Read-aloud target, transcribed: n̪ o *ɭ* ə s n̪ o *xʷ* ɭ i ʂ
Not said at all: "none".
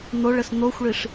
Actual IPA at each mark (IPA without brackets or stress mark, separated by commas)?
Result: ɭ, xʷ